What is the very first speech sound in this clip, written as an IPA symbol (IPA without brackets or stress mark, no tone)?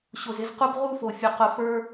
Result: ɕ